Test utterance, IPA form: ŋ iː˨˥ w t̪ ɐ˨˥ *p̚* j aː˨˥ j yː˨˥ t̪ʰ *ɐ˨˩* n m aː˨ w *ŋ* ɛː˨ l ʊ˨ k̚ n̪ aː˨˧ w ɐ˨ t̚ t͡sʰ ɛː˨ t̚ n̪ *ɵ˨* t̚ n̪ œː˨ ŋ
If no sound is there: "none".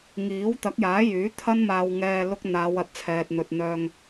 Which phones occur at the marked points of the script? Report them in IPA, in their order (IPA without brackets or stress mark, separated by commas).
k̚, ɐ˧, ŋ, ɵ˨